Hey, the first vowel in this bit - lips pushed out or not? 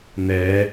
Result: no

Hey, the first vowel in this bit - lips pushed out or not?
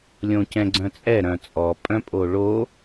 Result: yes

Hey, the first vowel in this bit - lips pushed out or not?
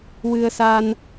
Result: no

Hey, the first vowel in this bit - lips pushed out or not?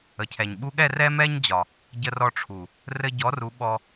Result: no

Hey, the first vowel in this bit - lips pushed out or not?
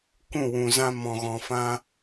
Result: yes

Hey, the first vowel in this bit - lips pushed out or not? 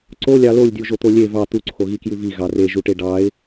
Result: yes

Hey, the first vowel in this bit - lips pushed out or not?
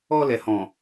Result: yes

